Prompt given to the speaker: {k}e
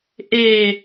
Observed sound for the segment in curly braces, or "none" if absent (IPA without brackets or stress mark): ʔ